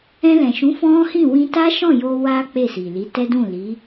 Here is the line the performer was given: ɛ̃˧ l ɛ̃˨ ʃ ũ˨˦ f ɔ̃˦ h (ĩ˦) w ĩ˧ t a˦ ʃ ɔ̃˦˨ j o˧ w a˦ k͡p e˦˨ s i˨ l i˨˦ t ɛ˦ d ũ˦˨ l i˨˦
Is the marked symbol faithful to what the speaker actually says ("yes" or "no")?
no